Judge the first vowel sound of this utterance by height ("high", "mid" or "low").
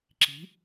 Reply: high